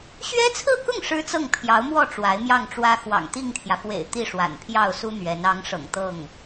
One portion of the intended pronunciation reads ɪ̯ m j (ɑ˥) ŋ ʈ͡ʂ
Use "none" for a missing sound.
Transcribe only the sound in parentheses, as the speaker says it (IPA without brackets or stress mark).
ɑ˥˩